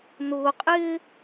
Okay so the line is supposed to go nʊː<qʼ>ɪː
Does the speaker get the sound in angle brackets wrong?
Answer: no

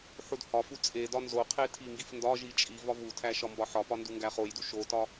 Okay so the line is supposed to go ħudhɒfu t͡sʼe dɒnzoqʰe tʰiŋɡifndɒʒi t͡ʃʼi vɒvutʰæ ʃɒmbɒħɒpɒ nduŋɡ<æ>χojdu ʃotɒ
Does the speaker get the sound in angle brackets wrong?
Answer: no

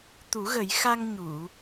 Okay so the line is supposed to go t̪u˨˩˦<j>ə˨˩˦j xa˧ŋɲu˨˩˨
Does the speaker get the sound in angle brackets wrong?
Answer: yes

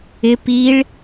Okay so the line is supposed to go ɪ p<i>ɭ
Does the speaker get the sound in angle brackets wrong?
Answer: no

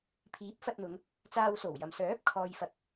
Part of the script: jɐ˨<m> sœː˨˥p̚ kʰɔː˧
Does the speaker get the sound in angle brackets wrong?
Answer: no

